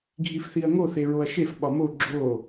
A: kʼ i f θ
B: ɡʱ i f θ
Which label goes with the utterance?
B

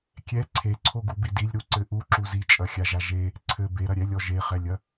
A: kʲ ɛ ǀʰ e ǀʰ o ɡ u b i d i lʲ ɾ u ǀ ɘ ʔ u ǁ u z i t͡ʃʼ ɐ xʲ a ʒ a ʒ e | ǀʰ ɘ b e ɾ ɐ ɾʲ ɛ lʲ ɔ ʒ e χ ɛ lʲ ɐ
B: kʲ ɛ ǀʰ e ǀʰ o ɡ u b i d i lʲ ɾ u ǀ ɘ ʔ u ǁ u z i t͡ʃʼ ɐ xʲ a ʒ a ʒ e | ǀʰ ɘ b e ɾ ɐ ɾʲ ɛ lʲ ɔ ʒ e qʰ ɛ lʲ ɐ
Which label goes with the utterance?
A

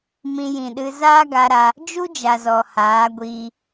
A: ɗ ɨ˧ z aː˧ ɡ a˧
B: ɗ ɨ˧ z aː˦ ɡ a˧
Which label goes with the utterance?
B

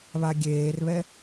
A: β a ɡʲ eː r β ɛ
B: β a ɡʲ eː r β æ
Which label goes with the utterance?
A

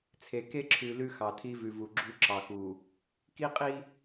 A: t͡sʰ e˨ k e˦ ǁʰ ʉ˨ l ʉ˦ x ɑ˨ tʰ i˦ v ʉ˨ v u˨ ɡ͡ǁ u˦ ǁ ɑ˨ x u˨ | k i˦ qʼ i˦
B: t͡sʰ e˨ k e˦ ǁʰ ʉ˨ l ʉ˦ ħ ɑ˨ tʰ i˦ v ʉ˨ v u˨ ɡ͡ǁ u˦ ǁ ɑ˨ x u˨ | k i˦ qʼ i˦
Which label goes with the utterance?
A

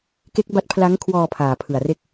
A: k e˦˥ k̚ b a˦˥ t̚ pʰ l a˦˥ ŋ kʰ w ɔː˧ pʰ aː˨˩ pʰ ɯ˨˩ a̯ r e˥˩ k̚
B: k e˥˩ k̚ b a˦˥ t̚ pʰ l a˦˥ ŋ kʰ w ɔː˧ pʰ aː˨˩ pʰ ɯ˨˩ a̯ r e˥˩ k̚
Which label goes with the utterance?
A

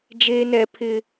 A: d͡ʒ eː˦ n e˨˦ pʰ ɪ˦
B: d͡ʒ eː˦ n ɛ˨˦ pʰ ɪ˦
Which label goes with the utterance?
B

